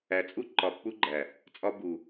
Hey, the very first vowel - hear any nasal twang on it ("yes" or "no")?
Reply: no